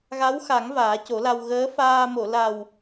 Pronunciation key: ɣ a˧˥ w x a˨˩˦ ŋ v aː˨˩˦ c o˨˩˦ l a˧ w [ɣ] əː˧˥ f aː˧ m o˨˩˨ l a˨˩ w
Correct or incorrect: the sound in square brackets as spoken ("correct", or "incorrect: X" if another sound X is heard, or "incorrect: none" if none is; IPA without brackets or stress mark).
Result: correct